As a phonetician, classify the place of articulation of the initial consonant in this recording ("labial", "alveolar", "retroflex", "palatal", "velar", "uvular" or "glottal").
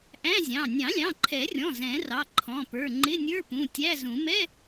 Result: glottal